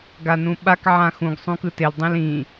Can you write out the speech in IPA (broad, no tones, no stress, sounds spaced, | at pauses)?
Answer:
ɡ a n ũ ɓ a k ʕ ã x ũ ɡ sˤ ũ k ɯ t e l dˤ ĩ l ĩ